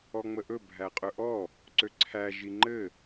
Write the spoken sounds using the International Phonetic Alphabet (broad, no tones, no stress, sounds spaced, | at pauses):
ɔ ŋ͡m ə ʔ ɵ bʱ æ qʼ ɵ ʔ ɔ | ǀ ø ǀʰ æ ʒ i ŋ͡ǃ ɘ